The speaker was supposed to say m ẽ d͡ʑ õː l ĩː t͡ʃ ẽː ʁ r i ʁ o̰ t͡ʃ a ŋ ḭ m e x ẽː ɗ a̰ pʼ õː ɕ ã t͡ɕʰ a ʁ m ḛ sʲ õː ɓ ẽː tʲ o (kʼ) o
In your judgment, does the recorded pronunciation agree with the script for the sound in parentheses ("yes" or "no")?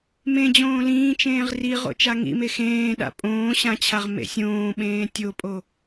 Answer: no